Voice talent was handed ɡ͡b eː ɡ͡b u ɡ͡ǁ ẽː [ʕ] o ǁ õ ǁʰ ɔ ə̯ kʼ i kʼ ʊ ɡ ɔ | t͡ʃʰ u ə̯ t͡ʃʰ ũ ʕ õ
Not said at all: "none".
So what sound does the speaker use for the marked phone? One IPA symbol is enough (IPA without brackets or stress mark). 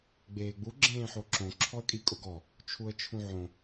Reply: ħ